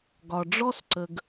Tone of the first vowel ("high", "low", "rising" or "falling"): low